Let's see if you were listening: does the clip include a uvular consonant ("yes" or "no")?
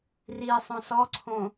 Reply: no